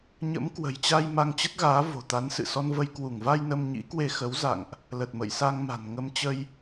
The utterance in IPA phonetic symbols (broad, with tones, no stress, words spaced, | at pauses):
ɲə̰˧˥mkwə̤˨˩jt͡ɕa˧j ma˧ŋt͡ɕə˦˥t̚ɣaː˨˦ vo̤˨˩t̪a˨˦nsɨ̰˧˨ sɔ˧nvə˧j kwu˧˩ŋva˧j nə˧mɲḭ˧˥kwe˧ xə˨˦wza̰˧˨ŋʔ | lə˨˩t̚mə̰˧˨jsa˧ŋma̤˨˩n ŋə˧mt͡ɕə˧j